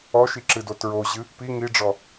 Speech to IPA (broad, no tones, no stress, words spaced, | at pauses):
ɔʃiǁɨdo tɹoʑɨ | pi ŋiɖ͡ʐɔ